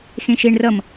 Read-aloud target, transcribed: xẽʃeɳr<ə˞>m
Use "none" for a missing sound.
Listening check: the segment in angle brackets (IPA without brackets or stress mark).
ʌ